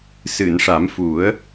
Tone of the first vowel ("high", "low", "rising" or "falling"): low